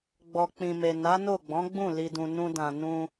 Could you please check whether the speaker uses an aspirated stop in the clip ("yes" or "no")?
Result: no